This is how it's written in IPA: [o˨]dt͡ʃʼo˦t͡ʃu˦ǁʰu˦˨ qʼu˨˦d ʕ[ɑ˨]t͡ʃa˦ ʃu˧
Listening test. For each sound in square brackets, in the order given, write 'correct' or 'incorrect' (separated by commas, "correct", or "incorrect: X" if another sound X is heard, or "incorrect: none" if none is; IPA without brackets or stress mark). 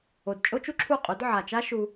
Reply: correct, incorrect: a˨